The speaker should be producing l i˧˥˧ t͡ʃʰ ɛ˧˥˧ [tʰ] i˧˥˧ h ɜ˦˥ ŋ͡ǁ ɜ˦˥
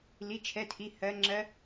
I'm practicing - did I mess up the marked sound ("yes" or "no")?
no